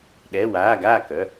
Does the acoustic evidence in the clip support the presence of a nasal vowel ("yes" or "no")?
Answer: no